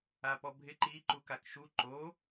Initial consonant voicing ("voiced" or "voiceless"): voiceless